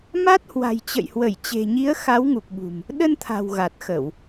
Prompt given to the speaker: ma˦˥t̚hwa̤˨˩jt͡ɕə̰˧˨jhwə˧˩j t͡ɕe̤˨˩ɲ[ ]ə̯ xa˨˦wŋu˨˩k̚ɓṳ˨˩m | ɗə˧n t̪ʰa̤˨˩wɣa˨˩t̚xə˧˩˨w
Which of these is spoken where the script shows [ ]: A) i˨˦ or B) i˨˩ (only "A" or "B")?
A